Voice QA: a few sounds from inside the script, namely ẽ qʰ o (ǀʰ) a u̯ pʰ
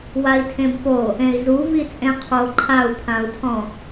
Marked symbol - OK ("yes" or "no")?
no